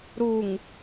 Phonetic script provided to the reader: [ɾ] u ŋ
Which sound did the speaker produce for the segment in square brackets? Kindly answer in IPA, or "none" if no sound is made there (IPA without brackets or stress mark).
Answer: ɾ